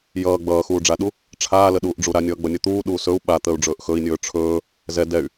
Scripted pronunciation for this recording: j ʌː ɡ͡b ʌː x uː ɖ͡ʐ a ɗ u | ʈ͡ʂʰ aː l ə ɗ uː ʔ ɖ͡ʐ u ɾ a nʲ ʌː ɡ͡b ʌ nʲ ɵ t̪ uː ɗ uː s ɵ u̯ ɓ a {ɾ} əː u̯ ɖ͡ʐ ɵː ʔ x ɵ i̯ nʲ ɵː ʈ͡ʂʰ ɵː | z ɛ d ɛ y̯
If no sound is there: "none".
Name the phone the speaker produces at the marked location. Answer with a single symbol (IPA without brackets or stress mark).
t̪